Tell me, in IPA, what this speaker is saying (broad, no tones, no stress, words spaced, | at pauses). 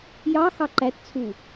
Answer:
jɑ xɑǃætt͡sʰu